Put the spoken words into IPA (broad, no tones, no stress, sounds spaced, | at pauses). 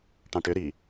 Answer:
ʈ ɑ̃ ʈ ʏ ɾ i